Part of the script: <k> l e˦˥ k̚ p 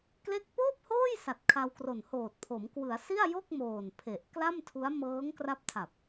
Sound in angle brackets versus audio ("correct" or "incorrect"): correct